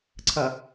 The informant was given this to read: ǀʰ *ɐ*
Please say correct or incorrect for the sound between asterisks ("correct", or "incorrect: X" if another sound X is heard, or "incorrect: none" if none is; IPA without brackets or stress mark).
correct